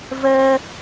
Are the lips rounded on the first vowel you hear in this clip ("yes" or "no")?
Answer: no